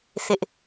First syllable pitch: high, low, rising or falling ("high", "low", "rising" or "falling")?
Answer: high